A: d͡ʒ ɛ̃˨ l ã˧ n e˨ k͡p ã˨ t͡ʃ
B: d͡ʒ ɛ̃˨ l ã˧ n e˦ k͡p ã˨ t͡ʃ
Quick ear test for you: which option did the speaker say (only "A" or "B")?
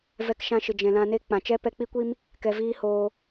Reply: B